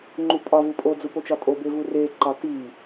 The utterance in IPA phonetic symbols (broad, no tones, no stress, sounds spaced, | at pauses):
ŋ͡ǃ u pʼ ɒ v u pʼ o d͡z u p o t͡ʃ ɒ tʼ o b e v u r e ǃ ɒ t i